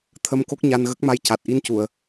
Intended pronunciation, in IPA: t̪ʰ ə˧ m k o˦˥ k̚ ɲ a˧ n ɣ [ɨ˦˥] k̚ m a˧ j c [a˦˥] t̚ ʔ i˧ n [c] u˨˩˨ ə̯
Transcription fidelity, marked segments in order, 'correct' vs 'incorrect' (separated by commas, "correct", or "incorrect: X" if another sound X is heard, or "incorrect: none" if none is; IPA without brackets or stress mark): incorrect: ə˦˥, incorrect: a˨˩, correct